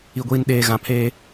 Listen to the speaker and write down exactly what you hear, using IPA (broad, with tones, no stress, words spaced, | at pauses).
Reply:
i˨ɡʷiː˨nɗeː˨ ɣã˨pʰeː˦